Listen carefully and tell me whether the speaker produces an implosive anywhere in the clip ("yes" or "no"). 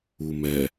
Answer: no